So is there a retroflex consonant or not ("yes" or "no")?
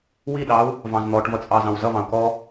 yes